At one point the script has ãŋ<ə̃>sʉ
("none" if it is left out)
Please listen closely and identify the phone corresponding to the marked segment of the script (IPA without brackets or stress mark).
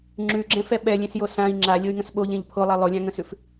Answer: ə̃